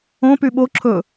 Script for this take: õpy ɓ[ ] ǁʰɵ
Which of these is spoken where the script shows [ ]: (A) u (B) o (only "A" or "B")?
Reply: B